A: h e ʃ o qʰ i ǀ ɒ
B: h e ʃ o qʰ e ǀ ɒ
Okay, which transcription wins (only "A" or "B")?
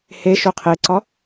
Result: B